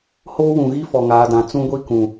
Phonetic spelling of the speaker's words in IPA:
h oː˦ w ũ˨ ɣ i˦ f ɔ˨ ŋ aː˨ d ã˨ t͡s ũ˦ ɡʷ i˦ k ũ˨

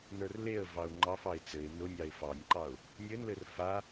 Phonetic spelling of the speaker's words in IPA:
n ə˞ r l e ə̯ v ɑ ʊ̯ ŋ͡ǃ ɑ f ɑ ɪ̯ t͡s ɘ ɪ̯ n ʊ nʲ ɑ ɪ̯ f ɑ nʲ ǃ ɑ ʊ̯ | nʲ ɘ n l ɘ r f a

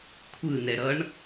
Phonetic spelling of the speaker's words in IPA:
kʷʰ ɯ n ɛ ɾ ʌ ɳ

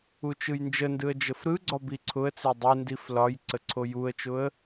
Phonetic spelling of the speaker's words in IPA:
u t͡ʃ ɯ j n d͡ʒ ə n d ɯ ə̯ d͡ʒ ə f ɾ ɯ ɡ͡ǀ ɒ b i ǀʰ ʊ ə̯ t͡s e dˤ ɯ n d i f l ɒ j ǀ ə ǀʰ o j u ə̯ t͡ʃ ʊ ə̯

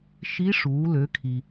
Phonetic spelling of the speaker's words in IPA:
ʃ i˧˥ ʂ uː˩˧ l ø˩˧ kʰ i˩

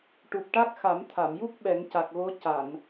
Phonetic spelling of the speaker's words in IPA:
ʈ u˨˩ p̚ ʈ a˦˥ k̚ x a˨˩˦ m t̪ʰ a˨˩˨ m j u˦˥ k̚ ɓ ɛ˨˩˦ ŋ c a˨˩ k̚ ɣ o˧˥ c a˨˩˨ n

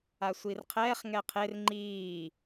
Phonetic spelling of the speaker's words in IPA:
a sʷ i r qʰ ɛː χ ŋ ɛ qʰ e r ŋ͡ǃ iː

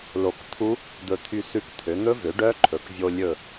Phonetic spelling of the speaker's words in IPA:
l o˧˩ k t̪ʰ u˦˥ | d̪ ɵ˧˩ t̪ʰ y˧˩ s ʉ˧˩ k t̪ʰ ø˩˧ n̪ ɵ˦˥ v ø˩˥ ɖ œ˦˥ ǃʰ ɵ˩˧ k vʲ o˧ lʲ ɵ˧˩

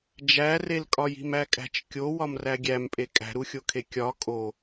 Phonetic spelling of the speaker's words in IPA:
d͡ʒ æ r e l kʼ ɒ j i̤ m æ kʼ æ̤ t͡ʃ kʲ o w ɒ m r æ ɡʲ æ m pʼ e kʼ æ̤ ɾ u xʲ o kʰ e kʲ ɒ kʼ o

